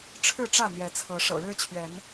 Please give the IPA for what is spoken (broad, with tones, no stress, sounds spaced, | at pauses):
ʈ͡ʂʰ ɻ̩˥˨ ʈ͡ʂ ä˥˨ n̪ j ɛ˨˦ t͡sʰ ɤ˨˦ ʂ ɤ̰˨˩ ɻ ɻ̩˦ t͡ɕʰ ɥ ɛ˨˦ n